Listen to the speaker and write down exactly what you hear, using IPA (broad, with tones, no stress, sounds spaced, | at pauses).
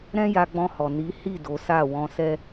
ɾ ɛ̃˦ j a˧ ɡ͡b ɔ̃˧ h ɔ˨ n i˨˦ h i˦˨ d o˨˦ s a˦˨ w ɔ̃˧ s ɛ˦